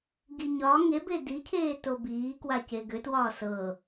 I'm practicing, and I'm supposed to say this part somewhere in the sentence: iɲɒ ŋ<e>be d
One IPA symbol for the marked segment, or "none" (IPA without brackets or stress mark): e